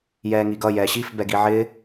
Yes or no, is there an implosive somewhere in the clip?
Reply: no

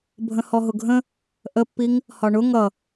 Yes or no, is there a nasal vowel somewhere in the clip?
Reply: yes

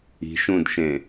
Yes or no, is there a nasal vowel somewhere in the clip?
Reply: yes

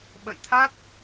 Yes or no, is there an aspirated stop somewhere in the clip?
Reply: yes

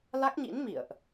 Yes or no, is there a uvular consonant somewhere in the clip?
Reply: no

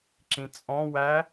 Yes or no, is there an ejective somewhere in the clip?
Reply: yes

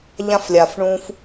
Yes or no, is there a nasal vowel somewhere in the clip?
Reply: yes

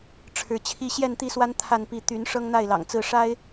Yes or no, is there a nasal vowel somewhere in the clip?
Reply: no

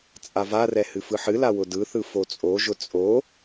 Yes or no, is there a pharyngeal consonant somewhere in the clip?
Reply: yes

